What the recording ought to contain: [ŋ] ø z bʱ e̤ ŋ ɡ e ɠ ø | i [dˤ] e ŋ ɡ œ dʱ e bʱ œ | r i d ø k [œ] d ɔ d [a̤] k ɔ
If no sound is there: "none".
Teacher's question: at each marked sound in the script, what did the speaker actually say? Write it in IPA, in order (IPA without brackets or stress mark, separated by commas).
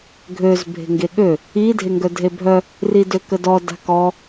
ɡʱ, dʱ, ə, a̤